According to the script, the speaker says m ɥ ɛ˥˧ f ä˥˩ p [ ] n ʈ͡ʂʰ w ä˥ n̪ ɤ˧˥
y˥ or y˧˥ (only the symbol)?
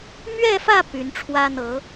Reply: y˧˥